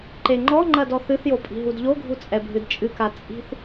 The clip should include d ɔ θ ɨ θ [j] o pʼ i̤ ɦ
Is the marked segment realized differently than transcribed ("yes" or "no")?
no